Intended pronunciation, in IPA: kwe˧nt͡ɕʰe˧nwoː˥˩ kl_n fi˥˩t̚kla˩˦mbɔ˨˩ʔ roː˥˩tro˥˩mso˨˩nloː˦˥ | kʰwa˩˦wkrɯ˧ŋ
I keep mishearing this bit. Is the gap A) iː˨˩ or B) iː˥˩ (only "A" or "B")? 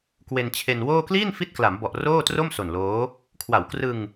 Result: B